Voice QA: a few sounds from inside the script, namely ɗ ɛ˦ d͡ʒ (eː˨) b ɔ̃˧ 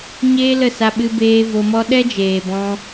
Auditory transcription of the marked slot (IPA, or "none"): eː˨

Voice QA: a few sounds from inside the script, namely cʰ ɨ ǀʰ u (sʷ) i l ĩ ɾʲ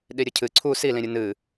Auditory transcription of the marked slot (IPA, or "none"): s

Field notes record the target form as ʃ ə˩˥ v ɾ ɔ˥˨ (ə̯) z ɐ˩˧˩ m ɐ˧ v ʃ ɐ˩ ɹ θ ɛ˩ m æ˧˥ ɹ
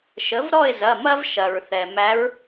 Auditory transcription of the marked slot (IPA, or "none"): ɪ̯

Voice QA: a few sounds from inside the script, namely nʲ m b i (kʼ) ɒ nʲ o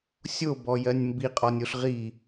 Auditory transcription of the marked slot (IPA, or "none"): qʼ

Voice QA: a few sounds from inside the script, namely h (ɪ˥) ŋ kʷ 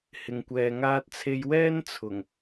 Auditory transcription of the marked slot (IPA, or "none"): ɪ˨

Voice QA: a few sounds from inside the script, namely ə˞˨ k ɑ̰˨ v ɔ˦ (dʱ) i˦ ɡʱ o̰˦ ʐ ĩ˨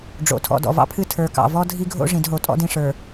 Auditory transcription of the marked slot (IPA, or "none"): dʱ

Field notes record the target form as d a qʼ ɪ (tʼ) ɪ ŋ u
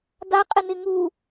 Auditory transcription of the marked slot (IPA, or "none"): n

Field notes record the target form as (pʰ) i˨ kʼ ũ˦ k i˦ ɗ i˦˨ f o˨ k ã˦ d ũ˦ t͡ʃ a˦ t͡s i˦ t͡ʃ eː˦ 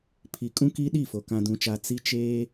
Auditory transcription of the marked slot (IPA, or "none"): pʰ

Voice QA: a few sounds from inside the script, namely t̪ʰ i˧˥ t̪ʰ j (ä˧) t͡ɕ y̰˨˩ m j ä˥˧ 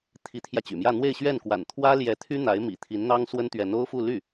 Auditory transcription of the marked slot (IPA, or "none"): ä˧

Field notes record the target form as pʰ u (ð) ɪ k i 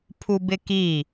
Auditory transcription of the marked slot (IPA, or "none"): b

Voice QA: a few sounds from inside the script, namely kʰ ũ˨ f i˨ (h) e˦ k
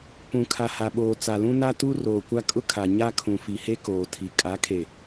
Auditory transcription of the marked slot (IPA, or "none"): h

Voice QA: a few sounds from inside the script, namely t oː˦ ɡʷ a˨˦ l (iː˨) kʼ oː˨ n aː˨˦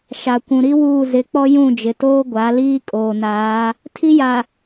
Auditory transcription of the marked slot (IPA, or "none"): iː˦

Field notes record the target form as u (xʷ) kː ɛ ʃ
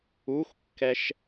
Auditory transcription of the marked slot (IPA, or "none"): xʷ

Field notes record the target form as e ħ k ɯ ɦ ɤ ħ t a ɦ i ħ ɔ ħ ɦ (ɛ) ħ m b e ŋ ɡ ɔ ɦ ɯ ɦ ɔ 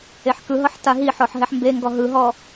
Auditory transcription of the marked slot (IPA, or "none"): ɛ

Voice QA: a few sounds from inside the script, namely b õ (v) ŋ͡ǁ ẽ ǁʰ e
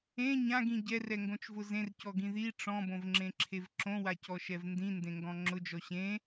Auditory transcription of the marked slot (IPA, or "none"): v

